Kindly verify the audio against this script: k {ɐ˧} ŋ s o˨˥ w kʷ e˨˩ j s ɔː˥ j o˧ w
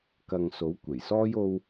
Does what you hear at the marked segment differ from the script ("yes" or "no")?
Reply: no